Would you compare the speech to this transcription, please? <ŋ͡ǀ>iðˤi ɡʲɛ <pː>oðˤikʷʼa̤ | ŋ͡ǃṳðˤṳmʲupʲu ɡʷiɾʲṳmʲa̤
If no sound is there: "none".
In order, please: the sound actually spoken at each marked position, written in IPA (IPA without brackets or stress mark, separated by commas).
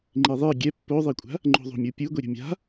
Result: ŋ͡ǃ, pː